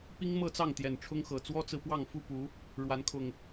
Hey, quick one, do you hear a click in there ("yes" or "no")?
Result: no